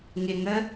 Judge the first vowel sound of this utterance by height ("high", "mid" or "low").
high